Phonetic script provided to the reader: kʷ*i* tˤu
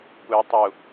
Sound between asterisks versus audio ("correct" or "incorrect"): incorrect